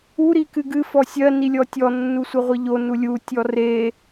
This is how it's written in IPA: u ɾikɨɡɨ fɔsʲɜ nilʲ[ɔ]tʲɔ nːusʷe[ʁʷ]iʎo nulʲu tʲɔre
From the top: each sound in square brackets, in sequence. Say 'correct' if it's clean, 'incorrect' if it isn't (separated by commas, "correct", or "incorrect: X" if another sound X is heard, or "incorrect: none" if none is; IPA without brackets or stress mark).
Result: correct, correct